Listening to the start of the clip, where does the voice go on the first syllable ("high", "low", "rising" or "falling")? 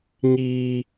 high